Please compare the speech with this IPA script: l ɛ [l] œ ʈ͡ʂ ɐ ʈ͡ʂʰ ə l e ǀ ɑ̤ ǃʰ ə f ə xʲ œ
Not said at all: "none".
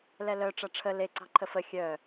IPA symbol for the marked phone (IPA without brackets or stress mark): l